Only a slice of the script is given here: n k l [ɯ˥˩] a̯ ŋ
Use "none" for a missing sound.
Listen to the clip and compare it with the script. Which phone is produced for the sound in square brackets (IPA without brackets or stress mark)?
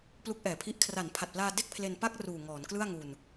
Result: ɯ˥˩